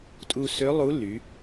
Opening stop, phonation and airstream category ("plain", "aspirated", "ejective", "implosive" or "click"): ejective